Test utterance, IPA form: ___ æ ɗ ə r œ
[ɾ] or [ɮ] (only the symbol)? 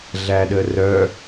ɮ